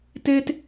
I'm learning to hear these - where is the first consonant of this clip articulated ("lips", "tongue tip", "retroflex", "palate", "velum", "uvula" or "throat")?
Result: tongue tip